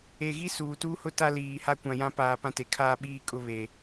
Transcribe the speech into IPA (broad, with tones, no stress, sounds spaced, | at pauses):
e˨ ɣ i˦ s uː˨ t uː˦ h ʊ˦ t a˦ l iː˨ h a˦ kʷ ã˨ j ã˦ p aː˨ p ã˦ t e˨ kʰ aː˦ ɓ iː˦ kʼ ʊ˦ β e˨